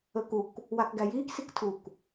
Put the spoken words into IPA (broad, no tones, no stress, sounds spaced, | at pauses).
əː k u k | w a k ɡ æ j iː k s i k tʰ u k